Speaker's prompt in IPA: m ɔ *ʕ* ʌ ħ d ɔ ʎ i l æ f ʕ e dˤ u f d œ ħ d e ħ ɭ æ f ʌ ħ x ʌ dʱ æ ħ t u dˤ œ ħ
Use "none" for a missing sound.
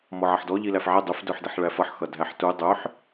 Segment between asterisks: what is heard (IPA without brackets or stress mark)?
ʕ